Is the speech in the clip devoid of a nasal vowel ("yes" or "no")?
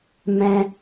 no